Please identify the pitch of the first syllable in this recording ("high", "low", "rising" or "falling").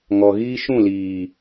low